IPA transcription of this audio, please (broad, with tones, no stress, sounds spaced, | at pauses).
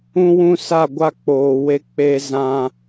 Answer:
ũ˦ w ũ˦ s a˦˨ ɡʷ a˦ k͡p oː˨ w e˦ k͡p e˦ z ã˦